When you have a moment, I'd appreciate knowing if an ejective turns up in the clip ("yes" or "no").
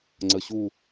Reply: no